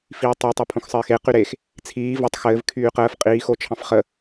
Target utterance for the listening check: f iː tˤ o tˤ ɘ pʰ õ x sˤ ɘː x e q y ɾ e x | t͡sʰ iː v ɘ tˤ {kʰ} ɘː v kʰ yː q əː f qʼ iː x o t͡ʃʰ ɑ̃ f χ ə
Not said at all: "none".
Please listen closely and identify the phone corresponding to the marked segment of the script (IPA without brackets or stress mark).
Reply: x